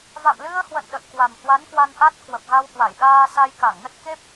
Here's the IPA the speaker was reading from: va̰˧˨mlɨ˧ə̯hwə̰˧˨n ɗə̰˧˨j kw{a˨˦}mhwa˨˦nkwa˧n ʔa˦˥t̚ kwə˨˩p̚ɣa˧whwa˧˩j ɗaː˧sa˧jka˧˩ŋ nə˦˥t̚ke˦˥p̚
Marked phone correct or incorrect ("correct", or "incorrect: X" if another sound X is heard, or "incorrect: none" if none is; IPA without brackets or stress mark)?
incorrect: a˨˩